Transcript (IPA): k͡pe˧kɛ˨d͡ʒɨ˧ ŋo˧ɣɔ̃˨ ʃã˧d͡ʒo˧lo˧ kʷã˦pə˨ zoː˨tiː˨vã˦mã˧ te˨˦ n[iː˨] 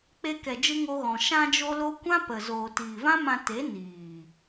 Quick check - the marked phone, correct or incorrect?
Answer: correct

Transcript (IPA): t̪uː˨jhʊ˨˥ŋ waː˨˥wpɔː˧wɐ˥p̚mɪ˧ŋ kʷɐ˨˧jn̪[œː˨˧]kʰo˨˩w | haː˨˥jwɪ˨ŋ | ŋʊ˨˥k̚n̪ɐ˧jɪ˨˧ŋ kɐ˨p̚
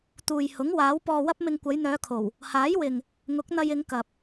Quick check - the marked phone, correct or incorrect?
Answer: correct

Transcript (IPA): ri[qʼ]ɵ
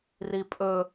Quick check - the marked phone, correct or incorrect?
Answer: incorrect: pʼ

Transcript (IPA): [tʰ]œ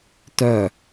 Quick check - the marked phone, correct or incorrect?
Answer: incorrect: t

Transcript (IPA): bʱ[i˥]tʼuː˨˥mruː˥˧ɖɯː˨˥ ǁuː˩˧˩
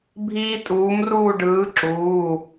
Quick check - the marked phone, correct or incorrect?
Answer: incorrect: iː˥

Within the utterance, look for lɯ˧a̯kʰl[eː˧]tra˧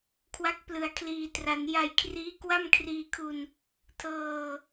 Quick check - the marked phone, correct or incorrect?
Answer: incorrect: iː˧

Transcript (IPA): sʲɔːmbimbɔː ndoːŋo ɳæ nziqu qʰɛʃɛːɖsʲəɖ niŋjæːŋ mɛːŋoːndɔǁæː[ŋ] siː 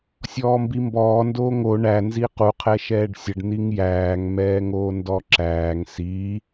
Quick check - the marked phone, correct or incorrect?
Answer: correct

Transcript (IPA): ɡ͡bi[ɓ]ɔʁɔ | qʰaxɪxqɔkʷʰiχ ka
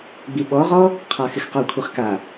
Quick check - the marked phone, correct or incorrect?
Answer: correct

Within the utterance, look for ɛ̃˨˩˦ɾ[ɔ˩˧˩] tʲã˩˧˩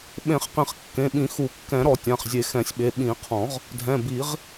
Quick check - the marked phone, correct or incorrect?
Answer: incorrect: ɔ˨˩˦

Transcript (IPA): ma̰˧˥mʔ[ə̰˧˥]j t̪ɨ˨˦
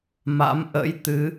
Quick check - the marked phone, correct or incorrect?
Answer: correct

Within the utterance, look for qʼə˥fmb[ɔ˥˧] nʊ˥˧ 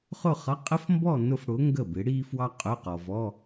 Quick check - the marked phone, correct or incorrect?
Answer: correct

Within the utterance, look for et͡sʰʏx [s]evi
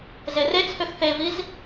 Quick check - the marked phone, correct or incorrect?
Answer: incorrect: θ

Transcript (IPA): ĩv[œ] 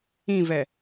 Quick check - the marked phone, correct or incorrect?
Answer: incorrect: ɛ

